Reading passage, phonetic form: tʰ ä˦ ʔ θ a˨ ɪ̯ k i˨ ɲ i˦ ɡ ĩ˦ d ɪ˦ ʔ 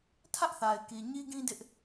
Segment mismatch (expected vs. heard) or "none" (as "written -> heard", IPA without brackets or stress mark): none